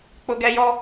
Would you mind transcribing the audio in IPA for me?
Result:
k͡pʊ˦ɡɛ˦jɔ˦

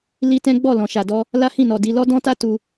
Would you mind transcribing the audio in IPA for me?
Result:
li˦tɛ̃˦ ɡ͡bɔ˦˨lɔ̃˨ʃa˨dɔ˧ | la˦hĩ˦˨nɔ˨di˧ lɔ˦dɔ̃˦ta˦ tu˧

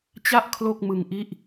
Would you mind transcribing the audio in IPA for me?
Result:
t͡ɕa˥˩ʔ kʰlo˥˩k̚mɯ˧ŋʔi˥˩ʔ

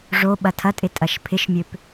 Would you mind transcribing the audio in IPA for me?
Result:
ʐo ɓɐtʰɐtʼɪ tʼɐʃpʰɪʃmʲøp

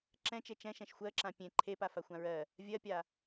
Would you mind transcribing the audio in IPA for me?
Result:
ǁɛ̃t͡ʃe t͡ʃɛ̃ʃɛ̃ʃ xʷɜǁã pʲẽ ǃʰepa faxʷãɹɜ | vʲɜpʲa

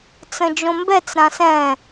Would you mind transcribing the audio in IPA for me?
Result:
t͡sə̃d͡ʒõmbɛt͡s ɾãsɛ̃

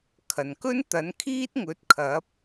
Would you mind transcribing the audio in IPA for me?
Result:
kʰɐ˨˩nkɵ˥n t̪ɐ˨˥nkʰiː˥t̚ŋɵ˨˥t̚ kʰɐ˨˥p̚

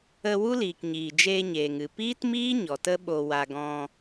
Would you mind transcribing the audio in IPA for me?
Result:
ə˧ wu˦liː˨kɲiː˨ d͡ʒeː˧ɲeː˨ŋɨ˨ piː˦tmiː˦ ɲɔ˨tə˦ɓo˧wa˧ ɡɔ̃˧

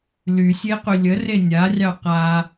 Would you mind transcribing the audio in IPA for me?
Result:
lysʲeqy lʲəre nʲarʲɑ qa

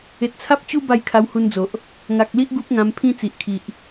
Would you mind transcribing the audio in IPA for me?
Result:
e˨t̚t͡sʰa˦p̚ t͡ɕu˦ ba˥˧jkʰa˧whu˧nd͡zo˨ʔ | ŋa˨k̚li˦ʔ ɡu˦p̚ŋã˧mpʰĩ˦ t͡si˨ʔkʰi˨ʔ

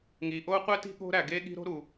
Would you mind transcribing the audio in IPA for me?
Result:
ŋi˩ʔo˥ qʷe˥ti̤˥ ɠo̤˥ɾæ˩ɡe˥ɠi̤˥ ɾo̤˥ɾu˩

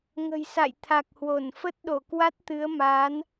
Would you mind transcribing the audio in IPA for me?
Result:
ŋə̤˨˩jsa̰˧˨j t̪ʰa˨˩k̚hwo˧˩n fə˦˥t̚ɗo˧˩kwa˦˥t̚t̪ɨ˨˦ə̯ ma˨˦n

